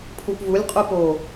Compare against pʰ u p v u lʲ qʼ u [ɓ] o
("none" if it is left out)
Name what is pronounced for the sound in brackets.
p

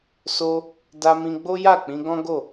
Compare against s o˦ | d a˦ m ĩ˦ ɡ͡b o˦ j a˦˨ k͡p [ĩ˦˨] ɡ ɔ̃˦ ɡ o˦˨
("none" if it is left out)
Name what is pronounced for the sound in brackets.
ĩ˧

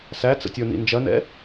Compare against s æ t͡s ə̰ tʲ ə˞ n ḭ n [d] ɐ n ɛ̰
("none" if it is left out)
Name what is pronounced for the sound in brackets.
d͡ʒ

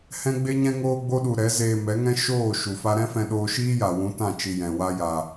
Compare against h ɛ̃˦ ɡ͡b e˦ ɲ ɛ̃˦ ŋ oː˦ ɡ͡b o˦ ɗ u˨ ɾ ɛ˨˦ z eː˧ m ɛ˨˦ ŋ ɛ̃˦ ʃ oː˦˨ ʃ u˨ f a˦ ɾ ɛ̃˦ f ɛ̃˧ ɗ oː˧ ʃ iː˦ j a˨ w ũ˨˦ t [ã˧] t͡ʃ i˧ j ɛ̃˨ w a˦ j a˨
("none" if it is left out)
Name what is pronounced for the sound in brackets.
ã˦˨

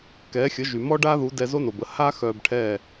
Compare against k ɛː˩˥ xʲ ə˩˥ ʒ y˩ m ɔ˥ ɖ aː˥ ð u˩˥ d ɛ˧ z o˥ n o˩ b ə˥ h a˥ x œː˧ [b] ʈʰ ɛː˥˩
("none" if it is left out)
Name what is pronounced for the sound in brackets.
b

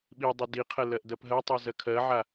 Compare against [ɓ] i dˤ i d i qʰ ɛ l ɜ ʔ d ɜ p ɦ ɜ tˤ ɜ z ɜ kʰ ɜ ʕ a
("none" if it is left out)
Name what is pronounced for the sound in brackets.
ɓ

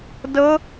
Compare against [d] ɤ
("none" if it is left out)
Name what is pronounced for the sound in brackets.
d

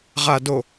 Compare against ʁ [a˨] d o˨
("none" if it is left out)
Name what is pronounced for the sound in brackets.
a˨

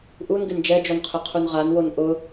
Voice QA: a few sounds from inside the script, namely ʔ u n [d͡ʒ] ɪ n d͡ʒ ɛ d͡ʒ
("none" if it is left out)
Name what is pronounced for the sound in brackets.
ɡ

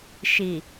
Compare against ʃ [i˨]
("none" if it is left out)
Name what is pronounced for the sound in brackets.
i˨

